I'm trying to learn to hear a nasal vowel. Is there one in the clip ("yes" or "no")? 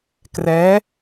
no